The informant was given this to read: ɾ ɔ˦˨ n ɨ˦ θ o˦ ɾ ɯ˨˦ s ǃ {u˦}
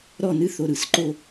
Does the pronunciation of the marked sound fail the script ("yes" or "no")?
yes